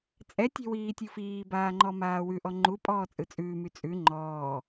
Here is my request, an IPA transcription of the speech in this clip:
t͡sʼ ɛ tʲ ɛ̤ w iː tʲ u f iː b aː ŋ͡ǃ ɔ m aː w ʉ ʔ ɔ ŋ͡ǃ u pʼ ɔː t͡sʼ ɯ t͡sʼ ʉː m y t͡sʼ ʉ ŋ͡ǃ ɔː

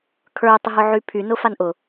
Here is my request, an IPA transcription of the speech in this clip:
kʰ ə˞ tˤ ʊ ɦ ʊ ʕ y pʰ y n ʊ f a n ʔ ʊ

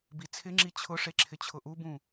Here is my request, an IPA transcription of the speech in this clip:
b i t͡sʰ ɪ ŋ͡ǁ i t͡ɕʰ ʊ ʂ e ǁʰ ɪ t͡ɕʰ ʊ ʔ u b ũ

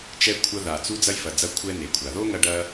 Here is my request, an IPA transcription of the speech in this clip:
t͡ʃ ɛ˧ kʷʰ ɐ˧ ð a˩ t͡s u˧ d͡z ɐ˧ j f ɐ˩ d͡z ɐ˧ kʷʰ ɛ˥ n e˩ kʷʰ a˩ ð o˥ ŋ ɐ˧ ɖ ɐ˧

